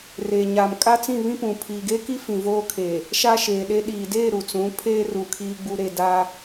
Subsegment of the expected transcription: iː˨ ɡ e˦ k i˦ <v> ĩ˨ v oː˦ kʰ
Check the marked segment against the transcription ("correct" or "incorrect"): incorrect